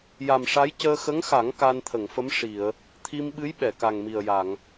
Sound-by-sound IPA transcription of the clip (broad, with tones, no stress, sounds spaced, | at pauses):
j a˨˩ m ʂ a˧˥ j c əː˧ x ə˧˥ ŋ x a˨˩˦ ŋ k a˧ n t̪ʰ ə˨˩˨ ŋ f ə˧˥ m ʂ i˨˩˨ ə̯ | t̪ʰ i˧ m ɓ ɨ˧˥ j ɓ ɛ˨˩˨ k a˨˩ ŋ m i˨˩ ə̯ j a˨˩˨ ŋ